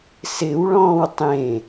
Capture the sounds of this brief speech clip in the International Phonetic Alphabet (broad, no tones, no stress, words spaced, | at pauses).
sɪwɭɔ̃ːw tˤẽ